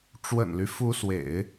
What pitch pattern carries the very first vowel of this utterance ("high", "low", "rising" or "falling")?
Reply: low